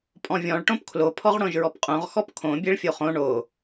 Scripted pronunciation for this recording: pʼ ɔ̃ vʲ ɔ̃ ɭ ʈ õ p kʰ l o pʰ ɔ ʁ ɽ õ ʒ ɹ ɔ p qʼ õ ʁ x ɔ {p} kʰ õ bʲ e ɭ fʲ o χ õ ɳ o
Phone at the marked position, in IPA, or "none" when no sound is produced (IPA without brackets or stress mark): p